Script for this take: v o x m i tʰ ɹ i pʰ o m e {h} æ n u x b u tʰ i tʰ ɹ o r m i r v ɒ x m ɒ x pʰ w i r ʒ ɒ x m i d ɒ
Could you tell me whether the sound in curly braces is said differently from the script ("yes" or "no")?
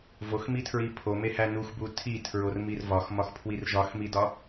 no